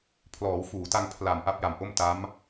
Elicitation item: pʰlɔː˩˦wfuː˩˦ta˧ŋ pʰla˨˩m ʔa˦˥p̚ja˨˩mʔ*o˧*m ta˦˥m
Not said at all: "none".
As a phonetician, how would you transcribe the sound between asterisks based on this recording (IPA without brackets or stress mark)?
o˥˩